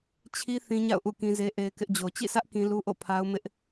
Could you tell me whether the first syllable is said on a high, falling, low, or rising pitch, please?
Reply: high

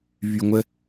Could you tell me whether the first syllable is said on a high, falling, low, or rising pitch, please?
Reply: low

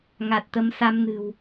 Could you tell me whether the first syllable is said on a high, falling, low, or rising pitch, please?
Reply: low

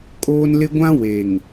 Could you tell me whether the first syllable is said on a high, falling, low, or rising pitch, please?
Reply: high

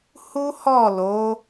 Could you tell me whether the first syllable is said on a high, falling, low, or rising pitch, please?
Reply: high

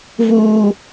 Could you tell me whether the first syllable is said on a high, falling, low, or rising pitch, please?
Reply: high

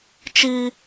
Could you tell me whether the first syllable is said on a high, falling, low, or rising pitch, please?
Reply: high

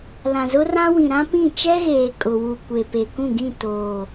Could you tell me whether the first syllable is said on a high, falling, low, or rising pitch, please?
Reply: low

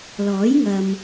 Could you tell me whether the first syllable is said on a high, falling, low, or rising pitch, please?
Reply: rising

